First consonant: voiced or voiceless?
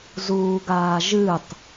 voiced